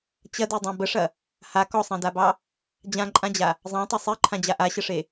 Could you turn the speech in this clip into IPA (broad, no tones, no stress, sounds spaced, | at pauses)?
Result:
t͡ɕ ɐ d e dˤ ɑ̃ b ə ʂ ɐ | h a k ɔ sˤ ã d a b ɑ | d͡ʑ ã ǃʼ ã d͡ʑ a | zˤ ɑ̃ tˤ ɐ sˤ e ǃʰ ã d͡ʑ a ʔ a ɕ ə ʂ e